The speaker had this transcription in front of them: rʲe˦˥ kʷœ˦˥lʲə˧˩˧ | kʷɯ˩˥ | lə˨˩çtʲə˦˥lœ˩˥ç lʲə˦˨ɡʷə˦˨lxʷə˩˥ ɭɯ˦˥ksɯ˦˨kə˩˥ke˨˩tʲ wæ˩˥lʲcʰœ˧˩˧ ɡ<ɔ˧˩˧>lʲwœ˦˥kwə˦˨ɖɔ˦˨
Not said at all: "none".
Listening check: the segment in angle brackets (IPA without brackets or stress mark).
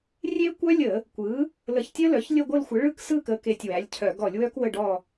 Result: ɔ˧˩˧